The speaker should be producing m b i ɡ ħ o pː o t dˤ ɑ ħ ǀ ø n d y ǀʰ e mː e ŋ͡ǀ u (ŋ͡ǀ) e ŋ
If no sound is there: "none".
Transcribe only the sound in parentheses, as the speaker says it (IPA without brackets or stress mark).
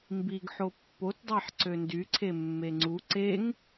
ǀ